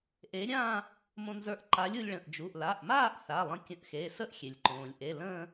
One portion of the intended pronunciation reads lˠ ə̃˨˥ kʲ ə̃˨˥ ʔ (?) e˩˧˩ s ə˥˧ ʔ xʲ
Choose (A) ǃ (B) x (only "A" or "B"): B